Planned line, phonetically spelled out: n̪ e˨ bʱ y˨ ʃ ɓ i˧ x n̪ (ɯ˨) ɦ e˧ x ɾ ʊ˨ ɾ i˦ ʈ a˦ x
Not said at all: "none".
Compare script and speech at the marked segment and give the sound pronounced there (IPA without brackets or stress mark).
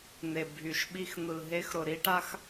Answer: ɯ˨